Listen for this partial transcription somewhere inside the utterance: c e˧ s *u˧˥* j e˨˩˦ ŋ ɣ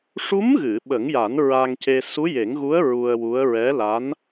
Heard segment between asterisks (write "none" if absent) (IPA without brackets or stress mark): u˧˥